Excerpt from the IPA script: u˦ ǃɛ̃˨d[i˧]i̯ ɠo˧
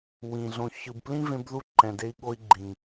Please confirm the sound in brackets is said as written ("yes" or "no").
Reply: no